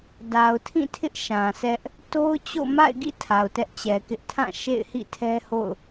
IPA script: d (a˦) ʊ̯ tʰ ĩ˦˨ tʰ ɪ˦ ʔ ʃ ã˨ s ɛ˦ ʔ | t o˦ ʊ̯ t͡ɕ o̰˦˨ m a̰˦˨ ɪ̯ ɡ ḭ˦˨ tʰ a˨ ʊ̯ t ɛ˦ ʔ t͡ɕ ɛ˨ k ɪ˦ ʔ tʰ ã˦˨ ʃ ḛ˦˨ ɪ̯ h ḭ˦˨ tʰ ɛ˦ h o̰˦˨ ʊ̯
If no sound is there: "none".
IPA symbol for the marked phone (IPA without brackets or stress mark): a˨